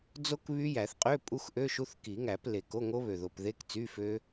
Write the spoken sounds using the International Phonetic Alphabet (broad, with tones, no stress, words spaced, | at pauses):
d͡zo˦˥k βy˦˥jæ˨˩˦θ qʼø˧˥˧ pʼu˦˥xʔø˧˥˧ʃu˧˥˧θ ki˨˩˦ŋæ˨˩˦ple˨˩ko˧˥˧ ŋo˦˥βø˨˩ðo˨˩pðe˧˥˧k t͡sy˧˥˧fø˦˥